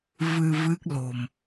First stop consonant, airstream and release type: plain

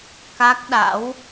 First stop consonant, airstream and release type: plain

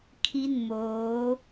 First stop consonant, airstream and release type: aspirated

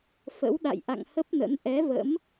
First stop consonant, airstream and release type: implosive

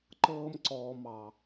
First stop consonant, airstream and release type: click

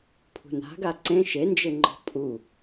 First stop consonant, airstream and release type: aspirated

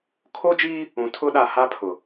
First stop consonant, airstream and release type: aspirated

